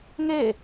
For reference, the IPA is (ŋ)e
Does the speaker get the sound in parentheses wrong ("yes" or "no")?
no